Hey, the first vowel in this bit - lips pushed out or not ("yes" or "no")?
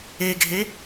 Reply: no